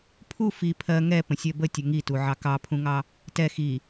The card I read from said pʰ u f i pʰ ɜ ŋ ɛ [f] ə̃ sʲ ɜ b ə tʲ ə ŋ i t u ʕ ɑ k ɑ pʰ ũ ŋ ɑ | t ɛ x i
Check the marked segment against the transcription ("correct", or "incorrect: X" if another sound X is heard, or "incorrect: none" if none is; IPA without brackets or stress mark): incorrect: p